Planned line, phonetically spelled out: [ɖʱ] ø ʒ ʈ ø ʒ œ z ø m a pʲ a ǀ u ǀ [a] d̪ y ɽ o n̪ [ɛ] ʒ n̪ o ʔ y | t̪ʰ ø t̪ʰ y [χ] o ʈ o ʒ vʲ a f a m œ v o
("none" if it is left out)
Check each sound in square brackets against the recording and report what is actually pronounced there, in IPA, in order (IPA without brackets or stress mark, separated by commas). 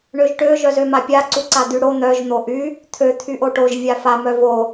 ɳ, a, œ, ʔ